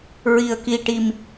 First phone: ɹ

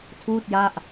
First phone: tʰ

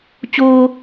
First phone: t͡ɕ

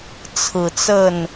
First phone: t͡sʰ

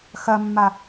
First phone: x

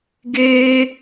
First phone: ɡ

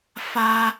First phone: f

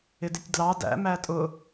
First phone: ɪ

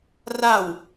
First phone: r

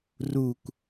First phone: r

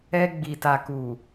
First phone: ɛ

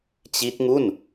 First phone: t͡ɕ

